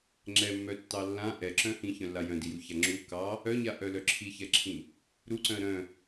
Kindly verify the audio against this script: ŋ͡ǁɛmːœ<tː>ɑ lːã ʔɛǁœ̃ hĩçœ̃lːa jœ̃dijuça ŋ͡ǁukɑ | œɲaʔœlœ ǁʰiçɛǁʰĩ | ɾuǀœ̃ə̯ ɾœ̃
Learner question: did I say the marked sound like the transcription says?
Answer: yes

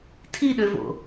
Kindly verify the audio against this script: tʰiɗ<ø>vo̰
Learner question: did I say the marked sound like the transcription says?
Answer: yes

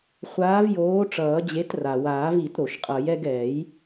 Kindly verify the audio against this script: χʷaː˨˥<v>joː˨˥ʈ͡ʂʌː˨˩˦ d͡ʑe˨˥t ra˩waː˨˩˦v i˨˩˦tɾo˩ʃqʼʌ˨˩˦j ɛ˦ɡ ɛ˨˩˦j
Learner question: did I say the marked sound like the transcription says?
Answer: yes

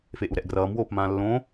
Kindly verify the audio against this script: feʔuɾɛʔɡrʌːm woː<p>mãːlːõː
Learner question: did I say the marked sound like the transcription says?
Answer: yes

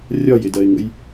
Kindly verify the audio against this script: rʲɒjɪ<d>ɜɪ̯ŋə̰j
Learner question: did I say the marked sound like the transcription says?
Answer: yes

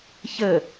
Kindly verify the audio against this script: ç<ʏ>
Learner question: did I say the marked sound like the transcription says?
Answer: no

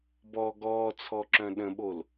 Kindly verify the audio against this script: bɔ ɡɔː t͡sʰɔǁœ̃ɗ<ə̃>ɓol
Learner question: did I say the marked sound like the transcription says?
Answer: yes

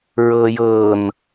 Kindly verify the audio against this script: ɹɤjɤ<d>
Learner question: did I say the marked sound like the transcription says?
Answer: no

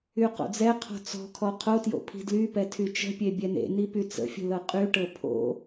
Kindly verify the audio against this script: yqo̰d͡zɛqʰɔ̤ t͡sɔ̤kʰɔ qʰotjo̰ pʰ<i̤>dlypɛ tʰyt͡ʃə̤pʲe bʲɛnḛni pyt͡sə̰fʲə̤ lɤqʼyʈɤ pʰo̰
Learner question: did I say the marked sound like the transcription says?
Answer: yes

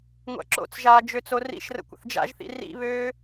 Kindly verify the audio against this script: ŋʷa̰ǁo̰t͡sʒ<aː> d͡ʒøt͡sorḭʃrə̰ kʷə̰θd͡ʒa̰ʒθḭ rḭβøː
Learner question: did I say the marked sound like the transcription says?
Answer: yes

